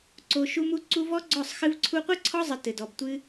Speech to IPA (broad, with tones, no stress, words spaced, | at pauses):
ǀo˧ ʃu˦mu˦ ǀu˦ vɔ˦ɡ͡ǀɔ˦˨sˤ xɨ˧vǀʰu˧qʷɨ˦ǀʰɔ˦ zˤɘ˧ tɘ˨dɔ˨b tʷɨ˧